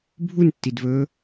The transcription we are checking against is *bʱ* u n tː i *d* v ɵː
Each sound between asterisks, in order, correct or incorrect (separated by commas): correct, correct